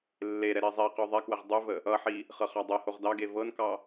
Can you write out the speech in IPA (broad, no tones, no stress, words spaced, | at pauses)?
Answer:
lːeɾɛ ɾizˤiqʉ ðˤɛkwəʁ dˤʉvə | ʌħi | χɤχɑdˤɤhoʁ dɑɡe vɤnkɑ